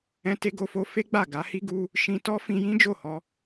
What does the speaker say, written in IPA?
ɛ̃˧te˧ɡo˧fo˧ fe˦ɡ͡ba˦˨ ɡa˨˦hi˦ɡu˦ | ʃĩ˧tɔ˦ fĩ˧jĩ˦d͡ʒo˦˨hɔ˧

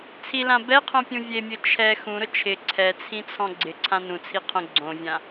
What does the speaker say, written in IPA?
t͡sʰilã bɛqʰõpʲũ vʲemʲʊ t͡ʃʰɛ xũɾʊ t͡ʃʰɪ ǀʰɛt͡sʰĩt͡sʰɔ̃ ɡ͡ǀɪǀʰã nũt͡sʰiqʰõ ɡ͡ǀõvʲã

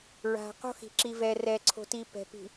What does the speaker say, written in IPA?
ɹa̤˨ qo̤˦xi̤˨ǁi˨ vɛ˨rɛ˨ǀʰo̤˨ti˨ pɛ̤˨ pi̤˨

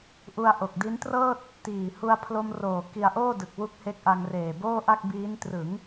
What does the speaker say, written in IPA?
ʔu˧a̯ʔo˨˩k̚di˦˥n trɤː˥˩t̚ | tiː˨˩ hu˧a̯pʰlo˧mroː˨˩ ki˧a̯ʔoː˥˩dɯ˨˩k̚ wu˦˥k̚he˦˥k̚ʔa˧ŋ reː˨˩boː˥˩ʔa˥˩k̚ biː˦˥n trɯ˩˦ŋ

